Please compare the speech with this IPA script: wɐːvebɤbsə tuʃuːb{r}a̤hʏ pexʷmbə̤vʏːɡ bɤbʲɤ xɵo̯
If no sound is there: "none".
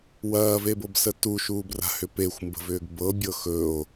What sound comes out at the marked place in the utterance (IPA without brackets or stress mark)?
r